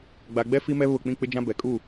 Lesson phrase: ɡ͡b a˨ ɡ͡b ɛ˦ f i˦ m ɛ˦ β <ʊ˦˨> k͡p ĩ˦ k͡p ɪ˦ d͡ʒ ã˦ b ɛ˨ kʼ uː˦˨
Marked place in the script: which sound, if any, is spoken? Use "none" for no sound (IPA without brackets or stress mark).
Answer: ʊ˦˨